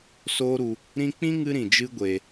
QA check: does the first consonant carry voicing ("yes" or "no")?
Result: no